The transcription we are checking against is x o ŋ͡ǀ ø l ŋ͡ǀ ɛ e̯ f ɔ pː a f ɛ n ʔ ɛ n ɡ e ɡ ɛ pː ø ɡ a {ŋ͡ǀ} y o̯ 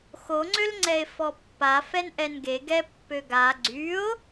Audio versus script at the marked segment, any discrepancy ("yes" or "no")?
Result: yes